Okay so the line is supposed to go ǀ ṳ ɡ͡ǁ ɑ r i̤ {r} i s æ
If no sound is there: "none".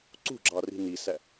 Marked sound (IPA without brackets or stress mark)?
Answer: n